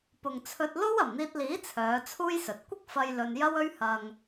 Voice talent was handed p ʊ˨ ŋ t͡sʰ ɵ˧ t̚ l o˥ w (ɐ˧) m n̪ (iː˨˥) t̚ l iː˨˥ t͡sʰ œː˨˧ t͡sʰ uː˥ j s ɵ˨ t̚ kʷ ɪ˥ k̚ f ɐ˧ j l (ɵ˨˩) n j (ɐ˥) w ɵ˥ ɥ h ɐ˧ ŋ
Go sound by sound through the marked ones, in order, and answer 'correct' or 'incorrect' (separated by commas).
incorrect, incorrect, incorrect, correct